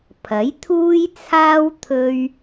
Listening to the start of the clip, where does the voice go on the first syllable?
rising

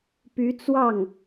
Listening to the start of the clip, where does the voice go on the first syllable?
rising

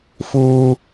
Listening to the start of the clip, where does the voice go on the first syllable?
high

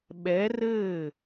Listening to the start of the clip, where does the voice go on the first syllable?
rising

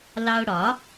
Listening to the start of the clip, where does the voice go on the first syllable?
high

